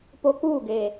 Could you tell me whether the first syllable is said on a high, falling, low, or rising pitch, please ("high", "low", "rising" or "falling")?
low